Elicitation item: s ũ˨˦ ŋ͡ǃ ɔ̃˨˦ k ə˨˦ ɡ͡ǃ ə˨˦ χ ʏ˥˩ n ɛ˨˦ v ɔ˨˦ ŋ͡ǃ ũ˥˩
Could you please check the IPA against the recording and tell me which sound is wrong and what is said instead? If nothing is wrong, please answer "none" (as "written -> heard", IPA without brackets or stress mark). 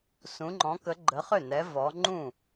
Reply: none